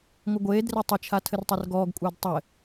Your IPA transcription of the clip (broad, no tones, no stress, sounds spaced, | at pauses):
ŋʷ ɘ ɡʷ eː d r e tˤ ɪ t͡ʃʰ a tʰ ɘ r tˤ ɛ r ɡ ɔː ɡ kʷʼ ɘː d tˤ ɘ